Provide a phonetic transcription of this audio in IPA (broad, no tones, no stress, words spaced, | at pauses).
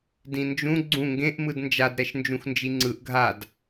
dĩnd͡ʒũ ɡ͡ǀũ ŋɡẽʔ mɯdnd͡ʒad ɾɛʃnd͡ʒũxnd͡ʒiŋ͡ǀɯʔ ɡʱad